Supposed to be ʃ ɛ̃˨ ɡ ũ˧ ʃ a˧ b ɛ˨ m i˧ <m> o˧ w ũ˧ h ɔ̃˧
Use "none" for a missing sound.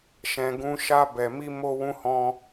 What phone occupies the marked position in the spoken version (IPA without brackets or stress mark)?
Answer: m